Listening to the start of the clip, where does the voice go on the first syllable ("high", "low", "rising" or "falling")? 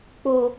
high